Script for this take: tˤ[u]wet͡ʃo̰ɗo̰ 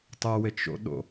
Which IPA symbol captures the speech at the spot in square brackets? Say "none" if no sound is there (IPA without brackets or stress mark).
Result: ʊ